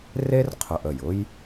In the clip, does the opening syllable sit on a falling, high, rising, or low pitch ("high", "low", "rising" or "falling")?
high